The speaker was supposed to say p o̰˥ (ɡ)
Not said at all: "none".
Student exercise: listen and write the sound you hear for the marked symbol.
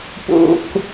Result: k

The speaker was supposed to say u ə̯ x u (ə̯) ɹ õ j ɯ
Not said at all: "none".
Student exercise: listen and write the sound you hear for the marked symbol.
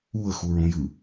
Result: none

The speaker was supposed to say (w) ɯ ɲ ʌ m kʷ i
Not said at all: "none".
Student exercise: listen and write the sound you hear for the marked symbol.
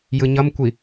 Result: j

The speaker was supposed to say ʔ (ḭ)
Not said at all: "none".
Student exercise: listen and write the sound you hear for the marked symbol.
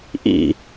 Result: ḭ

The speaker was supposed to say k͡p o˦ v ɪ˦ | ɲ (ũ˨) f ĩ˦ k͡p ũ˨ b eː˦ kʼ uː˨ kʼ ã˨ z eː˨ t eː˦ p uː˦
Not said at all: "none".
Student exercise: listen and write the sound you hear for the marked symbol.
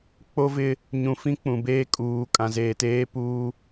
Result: ũ˨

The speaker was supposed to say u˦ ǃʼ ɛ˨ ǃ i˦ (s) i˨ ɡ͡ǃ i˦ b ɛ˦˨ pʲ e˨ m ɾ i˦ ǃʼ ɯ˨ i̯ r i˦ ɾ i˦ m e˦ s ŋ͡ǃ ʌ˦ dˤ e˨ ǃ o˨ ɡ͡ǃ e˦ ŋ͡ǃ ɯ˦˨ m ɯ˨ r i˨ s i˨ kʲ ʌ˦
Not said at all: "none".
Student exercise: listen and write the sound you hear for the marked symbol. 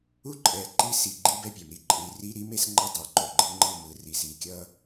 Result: s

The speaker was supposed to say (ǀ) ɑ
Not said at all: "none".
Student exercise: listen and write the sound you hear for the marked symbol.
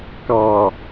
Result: k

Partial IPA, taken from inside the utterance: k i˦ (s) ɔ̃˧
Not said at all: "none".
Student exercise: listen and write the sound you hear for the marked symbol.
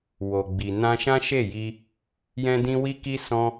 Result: s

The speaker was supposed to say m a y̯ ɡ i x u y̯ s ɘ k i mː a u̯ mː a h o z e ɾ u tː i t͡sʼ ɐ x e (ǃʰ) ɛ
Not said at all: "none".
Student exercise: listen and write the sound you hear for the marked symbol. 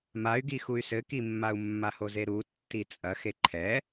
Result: ǃʰ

